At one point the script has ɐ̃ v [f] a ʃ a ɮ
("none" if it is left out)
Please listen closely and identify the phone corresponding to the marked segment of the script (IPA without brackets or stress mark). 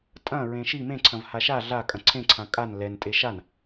h